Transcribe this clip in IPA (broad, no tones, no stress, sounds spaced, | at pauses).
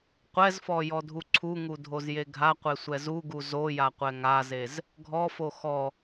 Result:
qʷ ɛ z f ɔ j ɔ dʱ u ǀʰ u ŋ u dʱ o z j e ɡʱ a qʷ e sʷ ɛ z u ɡ u z o j a qʷ ɛ ŋ a z e z | ɡʱ ɔ f o x ɔ